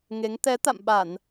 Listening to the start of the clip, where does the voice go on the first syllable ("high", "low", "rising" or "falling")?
rising